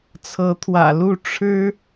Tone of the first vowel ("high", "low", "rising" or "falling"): rising